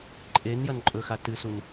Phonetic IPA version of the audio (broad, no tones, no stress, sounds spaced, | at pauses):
ǃʼ e n j ɐ n ǃʼ ɵ x a t ɨ s u n